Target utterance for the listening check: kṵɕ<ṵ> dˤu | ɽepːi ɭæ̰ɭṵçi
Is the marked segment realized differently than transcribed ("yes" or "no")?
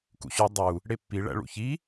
yes